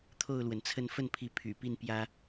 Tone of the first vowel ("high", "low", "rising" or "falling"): falling